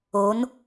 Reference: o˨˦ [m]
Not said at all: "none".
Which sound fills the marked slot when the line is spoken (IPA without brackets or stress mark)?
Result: n